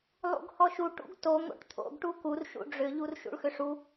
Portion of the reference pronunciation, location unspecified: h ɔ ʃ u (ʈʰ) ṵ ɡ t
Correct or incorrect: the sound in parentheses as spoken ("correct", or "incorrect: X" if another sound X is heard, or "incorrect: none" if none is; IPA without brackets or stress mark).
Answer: incorrect: ʈ